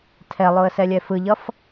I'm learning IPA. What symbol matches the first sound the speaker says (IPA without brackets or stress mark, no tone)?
tʰ